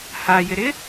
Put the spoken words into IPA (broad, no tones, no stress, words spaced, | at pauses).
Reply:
hajɪɾɪ